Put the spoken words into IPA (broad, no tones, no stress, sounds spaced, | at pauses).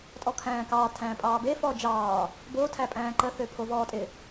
tʼ ɔ kʰ æ̃ː k ɑː tʰ æ̃ː pʼ ɑː b e f ɔː d͡ʒ ɑː | b o tʰ æ pʼ æ̃ː ǃ ə θ ø pʰ o v ɔː tʼ ɪ